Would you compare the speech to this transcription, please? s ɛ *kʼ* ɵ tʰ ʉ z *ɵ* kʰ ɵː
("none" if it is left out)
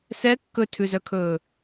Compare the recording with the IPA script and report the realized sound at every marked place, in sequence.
kː, œ

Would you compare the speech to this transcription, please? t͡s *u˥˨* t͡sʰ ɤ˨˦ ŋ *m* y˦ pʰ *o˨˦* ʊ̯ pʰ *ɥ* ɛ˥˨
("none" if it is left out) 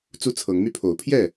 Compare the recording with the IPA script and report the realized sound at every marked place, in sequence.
u˦, m, o˨˦, j

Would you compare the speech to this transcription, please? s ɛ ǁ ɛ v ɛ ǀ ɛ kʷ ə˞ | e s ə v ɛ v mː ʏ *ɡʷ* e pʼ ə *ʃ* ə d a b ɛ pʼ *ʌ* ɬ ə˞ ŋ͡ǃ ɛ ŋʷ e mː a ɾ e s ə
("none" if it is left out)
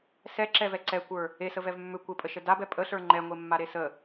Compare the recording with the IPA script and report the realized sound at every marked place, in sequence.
kʷ, ʃ, ə

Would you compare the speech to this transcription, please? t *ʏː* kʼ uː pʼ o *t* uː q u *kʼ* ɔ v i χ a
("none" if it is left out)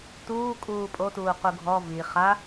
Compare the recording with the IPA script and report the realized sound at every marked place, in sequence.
uː, t, ɡʱ

